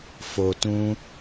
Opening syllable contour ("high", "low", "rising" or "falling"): low